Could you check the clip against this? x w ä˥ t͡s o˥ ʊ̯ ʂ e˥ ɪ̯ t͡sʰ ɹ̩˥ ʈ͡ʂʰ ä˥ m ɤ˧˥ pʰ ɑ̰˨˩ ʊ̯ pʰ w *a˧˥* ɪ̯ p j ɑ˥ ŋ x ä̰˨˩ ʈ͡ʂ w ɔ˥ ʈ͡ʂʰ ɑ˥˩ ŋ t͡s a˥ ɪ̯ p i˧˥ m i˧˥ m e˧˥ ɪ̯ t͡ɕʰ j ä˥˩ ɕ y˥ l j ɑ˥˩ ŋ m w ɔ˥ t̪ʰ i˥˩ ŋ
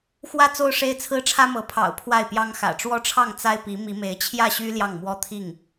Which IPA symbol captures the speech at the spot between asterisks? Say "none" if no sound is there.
a˥˩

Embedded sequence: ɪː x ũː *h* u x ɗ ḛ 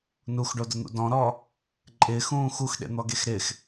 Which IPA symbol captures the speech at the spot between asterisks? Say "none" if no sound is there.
x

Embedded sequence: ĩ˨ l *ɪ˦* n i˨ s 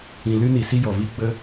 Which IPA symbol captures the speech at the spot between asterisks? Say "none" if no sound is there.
ɨ˦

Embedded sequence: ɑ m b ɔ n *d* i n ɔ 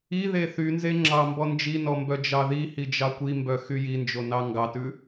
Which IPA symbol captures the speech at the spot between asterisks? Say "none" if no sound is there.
d͡ʒ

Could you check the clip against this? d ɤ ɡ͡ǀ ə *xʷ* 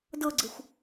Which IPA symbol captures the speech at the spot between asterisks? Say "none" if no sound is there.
xʷ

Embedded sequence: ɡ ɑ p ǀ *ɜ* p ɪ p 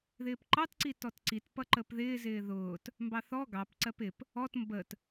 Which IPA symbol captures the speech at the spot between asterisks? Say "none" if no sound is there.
ɜ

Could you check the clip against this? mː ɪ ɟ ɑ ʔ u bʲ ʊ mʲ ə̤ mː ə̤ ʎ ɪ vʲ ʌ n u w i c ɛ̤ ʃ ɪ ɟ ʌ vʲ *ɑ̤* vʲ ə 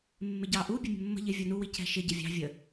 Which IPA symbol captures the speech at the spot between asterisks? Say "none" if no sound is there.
ɑ̤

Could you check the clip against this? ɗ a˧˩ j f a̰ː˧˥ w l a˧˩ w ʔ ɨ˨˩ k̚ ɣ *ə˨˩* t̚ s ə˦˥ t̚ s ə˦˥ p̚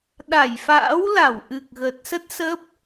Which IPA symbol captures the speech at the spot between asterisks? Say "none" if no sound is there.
ə˨˩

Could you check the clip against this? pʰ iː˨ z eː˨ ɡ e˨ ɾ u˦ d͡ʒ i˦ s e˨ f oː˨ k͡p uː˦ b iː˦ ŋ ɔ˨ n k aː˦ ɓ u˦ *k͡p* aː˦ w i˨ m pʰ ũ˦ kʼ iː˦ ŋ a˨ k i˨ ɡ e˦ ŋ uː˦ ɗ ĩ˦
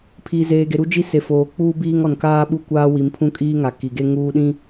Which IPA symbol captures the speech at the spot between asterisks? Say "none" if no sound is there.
kʷ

